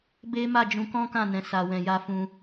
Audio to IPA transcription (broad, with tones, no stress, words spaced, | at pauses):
be˦ma˦˨ d͡ʒũ˧kɔ̃˦kã˦˨nɛ̃˨ sa˨wɛ̃˨ja˧ fũ˧